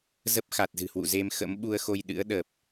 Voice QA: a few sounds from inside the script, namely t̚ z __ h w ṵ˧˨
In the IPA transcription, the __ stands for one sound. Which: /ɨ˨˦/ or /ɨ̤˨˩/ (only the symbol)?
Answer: ɨ̤˨˩